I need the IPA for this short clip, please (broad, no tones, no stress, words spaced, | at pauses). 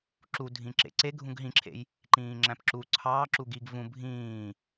ǁudʱĩ ǁḛǀe ɡʱũɡɦĩǁʰḛj | ǃĩːŋ͡ǁæ̃pǁu ǀʰɑː ǁuɡiɡ vũ bʱĩː